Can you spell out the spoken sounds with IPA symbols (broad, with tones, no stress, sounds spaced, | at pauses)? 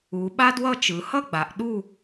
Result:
u˩˧ ɓ a˥ d w ʌ˥˧ t͡ʃ ɯ˩˧ h ʌ˥˧ ɡ͡b a˩˧ ʔ ɗ u˥˧